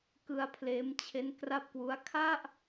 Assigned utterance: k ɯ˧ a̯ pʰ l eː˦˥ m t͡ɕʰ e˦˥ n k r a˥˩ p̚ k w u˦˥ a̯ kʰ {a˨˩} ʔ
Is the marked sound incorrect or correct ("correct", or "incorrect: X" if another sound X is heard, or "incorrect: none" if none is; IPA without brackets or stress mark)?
incorrect: a˥˩